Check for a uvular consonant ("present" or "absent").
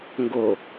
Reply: absent